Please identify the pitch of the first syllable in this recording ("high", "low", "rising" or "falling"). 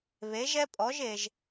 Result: rising